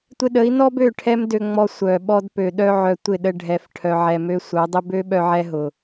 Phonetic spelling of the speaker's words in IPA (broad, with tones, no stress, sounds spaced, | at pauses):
tʷ ɪ˧ ɗ ə˨˦ i̯ n ɔ˦ b ø˦˨ ʈʰ ɛ˦ m d ø˧ ŋ͡m ɔ˧ sʷ œ˨ ɓ ɔ˧ d p ø˨ ɗ œ˧ ʕ œ˨ tʷ ɪ˦˨ ɗ ə˧ ɖʱ ɛ˨ f ʈʰ œ˨ ʕ ɛ˨ m ø˧ sʷ œ˨˦ dˤ ɪ˦ b ø˦ ɓ œ˧ ʕ ɛ˧ ɦ ʊ˨